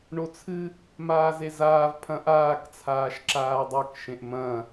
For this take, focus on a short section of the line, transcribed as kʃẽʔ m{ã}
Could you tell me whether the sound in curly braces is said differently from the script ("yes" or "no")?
yes